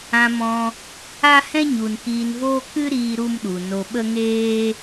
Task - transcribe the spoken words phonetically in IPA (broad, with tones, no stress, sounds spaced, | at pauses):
ã˧ m ɔ̃˧ | a˦ h ɛ̃˦ ɲ u˨ n k iː˧ n v oː˦ k ɨ˦ ɾ iː˦ ɾ u˦ m ɗ u˨ n o˧ ɓ ə˦ ŋ eː˦